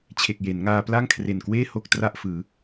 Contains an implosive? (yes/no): no